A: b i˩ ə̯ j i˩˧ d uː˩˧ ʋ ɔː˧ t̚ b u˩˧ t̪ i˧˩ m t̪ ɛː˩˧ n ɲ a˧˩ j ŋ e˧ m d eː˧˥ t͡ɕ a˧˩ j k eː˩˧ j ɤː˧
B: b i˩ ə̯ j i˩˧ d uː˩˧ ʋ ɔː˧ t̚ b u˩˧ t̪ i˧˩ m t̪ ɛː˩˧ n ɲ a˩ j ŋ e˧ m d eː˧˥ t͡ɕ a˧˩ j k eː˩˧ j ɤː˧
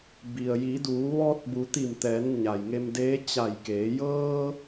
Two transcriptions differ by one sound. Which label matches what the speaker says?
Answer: B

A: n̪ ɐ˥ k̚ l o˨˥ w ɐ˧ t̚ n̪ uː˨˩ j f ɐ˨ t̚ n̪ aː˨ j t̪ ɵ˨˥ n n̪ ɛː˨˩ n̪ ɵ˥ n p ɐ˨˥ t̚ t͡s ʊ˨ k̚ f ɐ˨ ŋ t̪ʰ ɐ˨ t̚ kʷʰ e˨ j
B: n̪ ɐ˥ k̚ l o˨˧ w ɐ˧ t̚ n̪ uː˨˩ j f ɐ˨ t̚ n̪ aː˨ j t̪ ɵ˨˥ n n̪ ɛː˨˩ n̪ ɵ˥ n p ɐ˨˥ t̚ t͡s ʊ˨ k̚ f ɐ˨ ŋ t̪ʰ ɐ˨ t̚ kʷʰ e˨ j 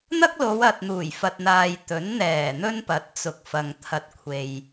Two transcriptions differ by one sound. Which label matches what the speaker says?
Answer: B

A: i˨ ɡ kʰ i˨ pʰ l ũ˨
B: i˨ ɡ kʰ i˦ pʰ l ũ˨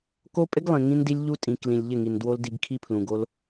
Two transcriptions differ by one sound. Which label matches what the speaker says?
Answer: B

